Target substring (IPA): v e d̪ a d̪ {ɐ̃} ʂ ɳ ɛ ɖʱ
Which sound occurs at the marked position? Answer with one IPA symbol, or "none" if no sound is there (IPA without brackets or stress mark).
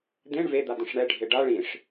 ə̃